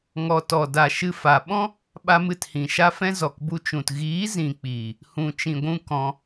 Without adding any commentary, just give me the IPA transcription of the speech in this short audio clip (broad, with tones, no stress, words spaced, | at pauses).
ŋɔ˨tɔ˨da˨ ʃɨ˦fa˧ ɓɔ̃˦ | ɓa˧mɨ˨thĩ˨ ʃa˧fɛ̃˧ zɔ˨kbu˧t͡ʃũ˨t ɣiː˨˦ zĩ˨k͡piː˨ | hũ˨t͡ʃĩ˨ɡʷũ˧ kɔ̃˧